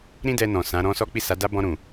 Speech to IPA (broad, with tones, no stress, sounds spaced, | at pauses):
ɾ ĩ˦ d ɛ˧ n ɔ̃˨ s ã˨˦ ɾ ɔ̃˦ s ɔ˦ k͡p i˦˨ s a˨˦ d a˦ b ɔ̃˧ ɾ ũ˨